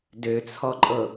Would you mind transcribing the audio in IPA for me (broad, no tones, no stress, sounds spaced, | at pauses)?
d ø t͡sʰ ɔ ǃʼ ɤ